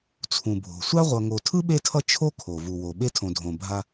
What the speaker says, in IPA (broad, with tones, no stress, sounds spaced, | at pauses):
t͡sʰ ũ˩ bʱ o̤˩ sʷ a˥ ʁʷ ʌ˨ ŋ o˨ tʰ ɯ˥ ɓ e˦ tʰ ʌ˦ t͡ʃʰ o˥ kʰ o˩ v u˩ w o˩ ɓ e˦ tʰ õ˨ dʱ õ˨ bʱ a˦